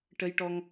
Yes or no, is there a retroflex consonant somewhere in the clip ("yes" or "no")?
yes